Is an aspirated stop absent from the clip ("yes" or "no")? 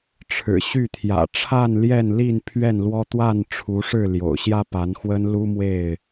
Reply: no